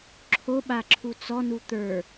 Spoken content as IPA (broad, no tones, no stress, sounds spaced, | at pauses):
ǁʰ o ɓ a ǁʰ u t͡s ɔ n u t̪ ə˞